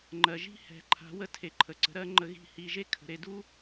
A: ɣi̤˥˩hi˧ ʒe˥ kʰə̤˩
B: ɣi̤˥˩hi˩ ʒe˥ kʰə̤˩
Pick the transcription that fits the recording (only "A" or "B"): A